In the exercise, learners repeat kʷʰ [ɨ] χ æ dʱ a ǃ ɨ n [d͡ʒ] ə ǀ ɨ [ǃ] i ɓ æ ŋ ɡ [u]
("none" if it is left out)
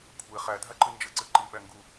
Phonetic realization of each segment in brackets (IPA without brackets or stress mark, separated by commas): e, d͡ʒ, ǃ, u